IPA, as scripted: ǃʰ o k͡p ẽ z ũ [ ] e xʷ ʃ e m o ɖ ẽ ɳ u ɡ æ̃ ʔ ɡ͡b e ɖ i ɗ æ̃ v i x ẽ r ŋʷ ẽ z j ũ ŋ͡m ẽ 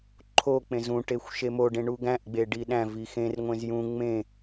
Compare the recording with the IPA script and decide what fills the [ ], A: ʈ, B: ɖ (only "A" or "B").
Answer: A